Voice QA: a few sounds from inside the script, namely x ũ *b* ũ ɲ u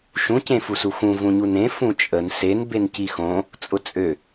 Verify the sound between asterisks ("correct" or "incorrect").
incorrect